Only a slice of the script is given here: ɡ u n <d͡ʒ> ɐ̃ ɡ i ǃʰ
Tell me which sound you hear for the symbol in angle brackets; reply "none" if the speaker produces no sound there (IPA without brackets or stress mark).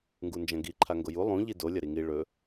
d͡ʒ